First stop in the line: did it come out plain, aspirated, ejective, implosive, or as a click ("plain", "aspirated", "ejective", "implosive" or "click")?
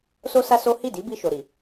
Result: plain